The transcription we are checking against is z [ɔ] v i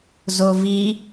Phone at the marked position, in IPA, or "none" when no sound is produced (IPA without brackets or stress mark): o